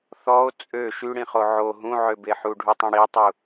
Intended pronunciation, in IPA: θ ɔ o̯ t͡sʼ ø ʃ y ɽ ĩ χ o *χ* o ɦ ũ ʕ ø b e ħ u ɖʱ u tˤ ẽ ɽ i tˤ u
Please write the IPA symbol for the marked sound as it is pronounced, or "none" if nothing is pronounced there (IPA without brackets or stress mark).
ʕ